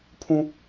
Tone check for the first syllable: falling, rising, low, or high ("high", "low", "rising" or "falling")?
high